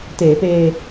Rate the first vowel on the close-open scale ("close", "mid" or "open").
mid